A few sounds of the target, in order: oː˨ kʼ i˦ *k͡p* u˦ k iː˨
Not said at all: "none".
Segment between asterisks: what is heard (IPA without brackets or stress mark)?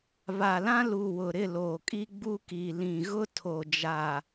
ɡ͡b